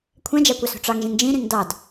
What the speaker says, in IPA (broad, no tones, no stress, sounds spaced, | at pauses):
kʷʰ ɛ̃ d͡ʒ a kʷ ɑ s o̤ ʈ͡ʂ ɑ ŋ ʒ ĩ ŋ d͡ʒ ĩ ɾ ĩ ŋ d ɑ d